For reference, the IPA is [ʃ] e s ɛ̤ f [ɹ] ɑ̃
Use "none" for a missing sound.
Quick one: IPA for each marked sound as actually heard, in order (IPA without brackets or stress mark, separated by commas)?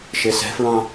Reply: ʃ, ɹ